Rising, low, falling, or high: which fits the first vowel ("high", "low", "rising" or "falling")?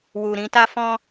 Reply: low